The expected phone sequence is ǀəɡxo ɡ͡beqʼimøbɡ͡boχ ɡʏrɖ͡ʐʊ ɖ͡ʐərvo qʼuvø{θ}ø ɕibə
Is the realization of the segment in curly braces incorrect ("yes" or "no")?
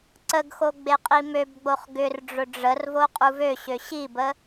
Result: yes